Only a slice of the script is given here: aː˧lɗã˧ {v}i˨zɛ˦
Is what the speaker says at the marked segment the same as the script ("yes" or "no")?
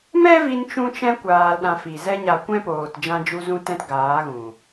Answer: no